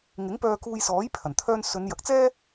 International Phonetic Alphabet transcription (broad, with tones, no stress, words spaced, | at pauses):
ŋɪ˨˥ŋpœː˧ kuː˧jsɔː˨˥j pʰɐ˨˩nt̪ʰœː˥n sɵ˨˧njɐ˨k̚t͡sɛː˥